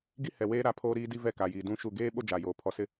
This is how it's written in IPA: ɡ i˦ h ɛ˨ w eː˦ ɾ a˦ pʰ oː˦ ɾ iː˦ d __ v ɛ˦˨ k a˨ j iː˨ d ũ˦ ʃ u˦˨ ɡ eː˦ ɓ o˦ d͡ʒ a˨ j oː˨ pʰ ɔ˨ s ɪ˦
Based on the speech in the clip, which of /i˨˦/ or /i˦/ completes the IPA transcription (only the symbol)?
i˦